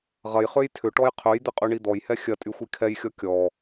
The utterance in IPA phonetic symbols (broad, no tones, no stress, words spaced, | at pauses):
ʁɐj χøjtʰʏʈɔj qʰøjd̪ɪ qʼyɳid̪ɔjhɛ xʲɐtʼy xʷikʰɛjxʲɔ kʲɔ